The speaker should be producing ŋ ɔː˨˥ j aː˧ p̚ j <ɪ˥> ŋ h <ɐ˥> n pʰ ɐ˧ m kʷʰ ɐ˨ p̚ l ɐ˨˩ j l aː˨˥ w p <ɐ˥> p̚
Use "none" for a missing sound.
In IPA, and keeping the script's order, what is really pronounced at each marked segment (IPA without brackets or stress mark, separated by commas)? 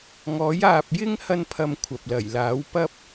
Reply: ɪ˥, ɐ˥, ɐ˥